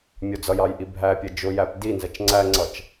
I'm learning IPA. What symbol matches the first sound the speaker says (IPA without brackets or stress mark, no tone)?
mʲ